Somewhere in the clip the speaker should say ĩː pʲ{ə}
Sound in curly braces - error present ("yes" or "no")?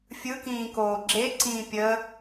no